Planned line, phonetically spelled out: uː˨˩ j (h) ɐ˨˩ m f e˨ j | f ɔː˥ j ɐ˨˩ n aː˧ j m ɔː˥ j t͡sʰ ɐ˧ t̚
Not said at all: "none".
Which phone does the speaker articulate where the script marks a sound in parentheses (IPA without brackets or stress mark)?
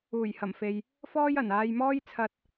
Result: h